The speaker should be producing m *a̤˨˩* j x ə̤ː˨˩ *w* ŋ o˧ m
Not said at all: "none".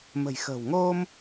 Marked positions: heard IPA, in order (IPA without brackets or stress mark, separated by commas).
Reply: ə̤˨˩, w